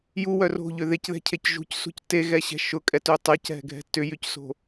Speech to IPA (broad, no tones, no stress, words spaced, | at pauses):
juwœ ro̤ʎʏ ðecðɛ̤cʰec ʒṳcsṳc teɣɛɕɛ̤ ʃʊkʼɛtø tˤɛcɦɛ̤ɡʱɛ̤ tʏjycso̤